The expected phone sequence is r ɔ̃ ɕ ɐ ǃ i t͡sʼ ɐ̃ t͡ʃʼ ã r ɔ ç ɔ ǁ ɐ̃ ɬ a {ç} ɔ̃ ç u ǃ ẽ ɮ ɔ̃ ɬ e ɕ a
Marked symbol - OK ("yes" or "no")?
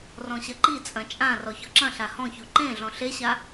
no